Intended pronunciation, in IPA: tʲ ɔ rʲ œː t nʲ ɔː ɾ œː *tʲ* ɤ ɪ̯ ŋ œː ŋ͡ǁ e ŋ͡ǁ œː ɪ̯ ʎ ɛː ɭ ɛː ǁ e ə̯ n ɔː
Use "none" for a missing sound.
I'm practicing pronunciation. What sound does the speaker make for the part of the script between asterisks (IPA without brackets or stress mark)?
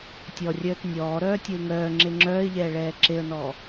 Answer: tʲ